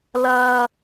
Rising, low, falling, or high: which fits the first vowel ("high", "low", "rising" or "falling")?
high